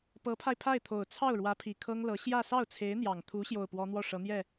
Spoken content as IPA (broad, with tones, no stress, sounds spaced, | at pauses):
p ɤ˧˥ pʰ a˧ ɪ̯ pʰ a˥˩ ɪ̯ t̪ʰ o˨˩ ʊ̯ t͡sʰ ɑ˥˩ ʊ̯ ɻ w ä˧˥ pʰ i˨˩ kʰ ɤ˥ ŋ l ɤ˧˥ ɕ j ä˥˧ s ɑ˥˩ ʊ̯ t͡sʰ e˧˥ ɪ̯ n̪ j ɑ˨˩ ŋ t̪ʰ u˧˥ ɕ j o˥˩ ʊ̯ p w ɔ˥ n̪ w ɔ˥˩ ʂ ɤ˧˥ n̪ j ɛ˥˩